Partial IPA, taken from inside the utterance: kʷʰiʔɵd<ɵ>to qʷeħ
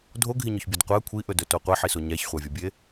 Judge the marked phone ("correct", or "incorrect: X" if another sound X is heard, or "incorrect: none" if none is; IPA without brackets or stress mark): correct